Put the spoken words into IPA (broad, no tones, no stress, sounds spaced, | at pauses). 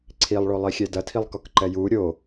ǀʰ i lˠ ɭ o lˠ i xʲ ɛ d ɐ tʰ i lˠ k ɔ k ǃ ɛ j u ɾʲ o